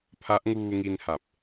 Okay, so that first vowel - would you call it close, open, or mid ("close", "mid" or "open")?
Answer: open